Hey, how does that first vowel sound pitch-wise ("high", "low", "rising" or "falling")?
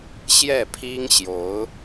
falling